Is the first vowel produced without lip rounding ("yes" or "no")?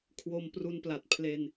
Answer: no